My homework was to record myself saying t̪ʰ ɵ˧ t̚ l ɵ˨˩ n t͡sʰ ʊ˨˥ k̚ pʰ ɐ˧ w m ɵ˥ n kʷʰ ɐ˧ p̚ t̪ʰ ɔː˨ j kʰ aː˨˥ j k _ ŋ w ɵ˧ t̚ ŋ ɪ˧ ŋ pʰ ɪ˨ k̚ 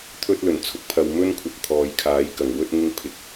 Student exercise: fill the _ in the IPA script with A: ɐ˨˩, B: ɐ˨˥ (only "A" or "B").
A